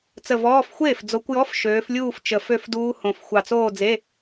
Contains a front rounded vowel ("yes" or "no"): yes